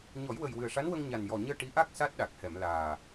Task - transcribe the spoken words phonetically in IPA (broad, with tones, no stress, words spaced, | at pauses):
ɲɔ˨˩˦jwə˨˩jwɨ˨˩ə̯ʂa˧˥n wə˧ŋɲa˨˩njɔ˨˩ɲəː˧ ʈi˧˥ʔa˦˥k̚ sa˦˥t̚ɗa˨˩k̚hɛ˨˩˨mlaː˨˩